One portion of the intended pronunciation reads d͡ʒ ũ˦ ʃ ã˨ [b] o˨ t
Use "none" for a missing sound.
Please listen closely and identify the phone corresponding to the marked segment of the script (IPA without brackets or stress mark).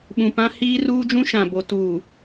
b